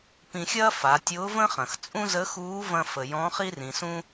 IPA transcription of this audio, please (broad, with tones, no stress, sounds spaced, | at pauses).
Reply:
p ĩ˧ xʲ ɐː˥ f a˩˧ tʲ ʊː˧˥ v ə̃˥ χ ɐ̃˩ x t͡sʼ ũ˥ z ə˧˥ x uː˧˥ v ɐ̃˧ f ə˩ j ɔ̃˧˥ χ i˥ r ĩ˩ s ũ˥